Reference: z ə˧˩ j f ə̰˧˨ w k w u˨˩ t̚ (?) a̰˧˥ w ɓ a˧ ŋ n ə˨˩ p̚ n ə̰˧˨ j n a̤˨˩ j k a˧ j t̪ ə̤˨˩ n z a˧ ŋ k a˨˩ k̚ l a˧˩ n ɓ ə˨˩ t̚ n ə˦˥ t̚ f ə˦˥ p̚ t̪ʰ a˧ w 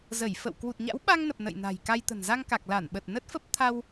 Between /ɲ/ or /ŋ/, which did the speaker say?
ɲ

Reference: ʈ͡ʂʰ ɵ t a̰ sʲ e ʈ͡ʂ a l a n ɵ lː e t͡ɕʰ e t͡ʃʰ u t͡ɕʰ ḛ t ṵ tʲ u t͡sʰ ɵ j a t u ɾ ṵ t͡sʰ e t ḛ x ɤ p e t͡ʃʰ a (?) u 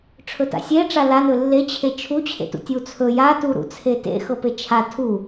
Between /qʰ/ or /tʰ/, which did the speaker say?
tʰ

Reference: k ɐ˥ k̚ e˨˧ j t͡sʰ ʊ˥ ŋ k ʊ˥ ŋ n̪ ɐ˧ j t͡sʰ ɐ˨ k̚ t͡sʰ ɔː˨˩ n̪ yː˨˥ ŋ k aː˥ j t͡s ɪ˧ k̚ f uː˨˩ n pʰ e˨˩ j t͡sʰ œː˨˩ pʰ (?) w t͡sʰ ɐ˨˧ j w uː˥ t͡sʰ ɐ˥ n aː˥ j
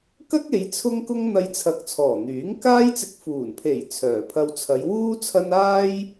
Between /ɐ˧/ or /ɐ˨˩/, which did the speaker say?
ɐ˧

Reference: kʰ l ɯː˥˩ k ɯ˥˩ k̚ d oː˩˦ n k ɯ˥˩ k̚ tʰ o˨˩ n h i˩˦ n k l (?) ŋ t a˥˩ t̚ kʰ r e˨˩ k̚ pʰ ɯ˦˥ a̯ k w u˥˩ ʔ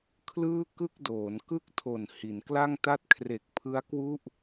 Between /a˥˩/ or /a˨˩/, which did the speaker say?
a˥˩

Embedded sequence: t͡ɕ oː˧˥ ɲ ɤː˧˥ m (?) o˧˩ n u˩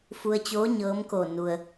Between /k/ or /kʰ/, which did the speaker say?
k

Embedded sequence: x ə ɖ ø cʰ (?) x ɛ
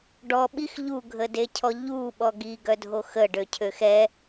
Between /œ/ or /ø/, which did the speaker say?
ø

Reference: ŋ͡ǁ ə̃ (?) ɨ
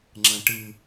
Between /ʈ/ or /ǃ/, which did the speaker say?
ʈ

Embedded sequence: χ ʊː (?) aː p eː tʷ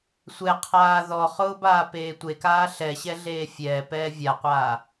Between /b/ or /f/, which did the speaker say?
b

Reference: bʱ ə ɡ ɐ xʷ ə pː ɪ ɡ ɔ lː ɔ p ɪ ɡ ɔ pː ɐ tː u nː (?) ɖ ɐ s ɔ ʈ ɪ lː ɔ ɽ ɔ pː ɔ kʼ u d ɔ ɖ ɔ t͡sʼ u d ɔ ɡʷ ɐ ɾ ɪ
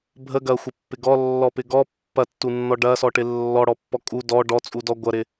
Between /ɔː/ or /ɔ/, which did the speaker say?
ɔ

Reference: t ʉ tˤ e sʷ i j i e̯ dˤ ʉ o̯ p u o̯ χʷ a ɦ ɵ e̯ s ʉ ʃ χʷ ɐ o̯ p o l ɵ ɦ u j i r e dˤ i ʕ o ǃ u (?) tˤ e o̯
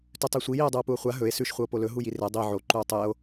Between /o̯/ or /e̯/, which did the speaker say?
o̯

